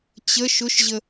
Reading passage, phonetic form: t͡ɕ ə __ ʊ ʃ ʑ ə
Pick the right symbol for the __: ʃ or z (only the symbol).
ʃ